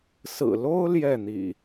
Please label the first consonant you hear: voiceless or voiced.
voiceless